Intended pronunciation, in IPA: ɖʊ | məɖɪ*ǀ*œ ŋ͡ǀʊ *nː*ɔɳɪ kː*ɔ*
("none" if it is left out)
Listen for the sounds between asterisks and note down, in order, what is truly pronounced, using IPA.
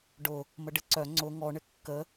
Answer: ǀ, ŋ, ə

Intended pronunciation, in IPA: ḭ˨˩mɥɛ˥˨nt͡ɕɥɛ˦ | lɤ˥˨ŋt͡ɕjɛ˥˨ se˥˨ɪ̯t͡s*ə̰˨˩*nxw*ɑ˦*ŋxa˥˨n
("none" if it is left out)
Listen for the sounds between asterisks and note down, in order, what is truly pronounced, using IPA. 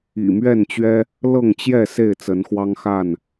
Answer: ə˨˦, ɑ˦

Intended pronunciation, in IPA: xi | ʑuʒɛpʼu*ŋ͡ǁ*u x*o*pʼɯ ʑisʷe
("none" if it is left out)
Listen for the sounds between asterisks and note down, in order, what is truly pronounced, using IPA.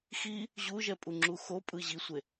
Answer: ŋ͡ǁ, o

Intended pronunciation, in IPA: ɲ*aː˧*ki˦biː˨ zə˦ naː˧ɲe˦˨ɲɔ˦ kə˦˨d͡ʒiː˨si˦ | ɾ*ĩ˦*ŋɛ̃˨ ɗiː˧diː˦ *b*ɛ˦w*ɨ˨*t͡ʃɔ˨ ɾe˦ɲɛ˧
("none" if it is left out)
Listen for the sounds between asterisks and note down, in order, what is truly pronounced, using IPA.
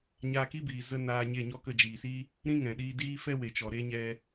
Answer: aː˧, ĩ˦, f, e˨

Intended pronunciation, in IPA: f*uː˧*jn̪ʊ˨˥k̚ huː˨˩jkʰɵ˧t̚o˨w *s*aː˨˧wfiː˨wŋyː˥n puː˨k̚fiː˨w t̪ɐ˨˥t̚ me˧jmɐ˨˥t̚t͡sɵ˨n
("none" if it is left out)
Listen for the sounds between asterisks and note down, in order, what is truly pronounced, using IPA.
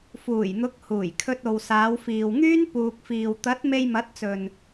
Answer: uː˨˩, s

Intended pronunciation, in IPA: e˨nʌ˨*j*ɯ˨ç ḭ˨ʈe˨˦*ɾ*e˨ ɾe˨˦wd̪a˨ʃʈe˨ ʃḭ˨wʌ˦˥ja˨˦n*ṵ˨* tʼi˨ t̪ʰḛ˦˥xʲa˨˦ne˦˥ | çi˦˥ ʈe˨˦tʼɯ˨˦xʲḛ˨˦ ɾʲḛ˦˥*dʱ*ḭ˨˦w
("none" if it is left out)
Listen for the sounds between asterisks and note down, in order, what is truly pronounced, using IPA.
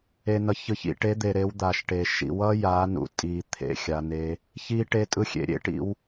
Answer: ç, d̪, ṵ˨, ʈ

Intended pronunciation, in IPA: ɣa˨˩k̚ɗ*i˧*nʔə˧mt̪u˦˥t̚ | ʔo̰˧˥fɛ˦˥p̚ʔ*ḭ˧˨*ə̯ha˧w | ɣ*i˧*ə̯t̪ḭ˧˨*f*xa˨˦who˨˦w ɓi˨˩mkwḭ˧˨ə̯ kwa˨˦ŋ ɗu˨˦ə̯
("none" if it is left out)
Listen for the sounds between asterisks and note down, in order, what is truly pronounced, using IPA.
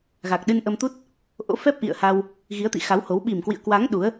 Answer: ɨ˧, ḭ˧˨, i˨˦, none

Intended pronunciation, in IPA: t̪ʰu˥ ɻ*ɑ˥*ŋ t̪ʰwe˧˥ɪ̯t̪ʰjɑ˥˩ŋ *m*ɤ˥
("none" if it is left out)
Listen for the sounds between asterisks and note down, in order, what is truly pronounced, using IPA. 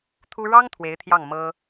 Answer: ɑ˥, m

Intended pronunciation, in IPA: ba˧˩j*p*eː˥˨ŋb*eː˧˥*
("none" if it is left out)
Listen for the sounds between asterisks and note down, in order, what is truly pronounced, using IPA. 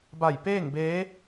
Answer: p, eː˧˥

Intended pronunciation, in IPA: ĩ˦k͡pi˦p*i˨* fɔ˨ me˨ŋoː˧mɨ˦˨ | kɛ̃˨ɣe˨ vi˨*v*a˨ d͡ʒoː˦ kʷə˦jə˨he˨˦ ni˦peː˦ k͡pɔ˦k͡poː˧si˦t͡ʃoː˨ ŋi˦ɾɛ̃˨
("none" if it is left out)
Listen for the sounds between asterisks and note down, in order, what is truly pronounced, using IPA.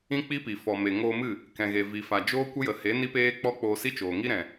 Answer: i˨, f

